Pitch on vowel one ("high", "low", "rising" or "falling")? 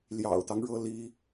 low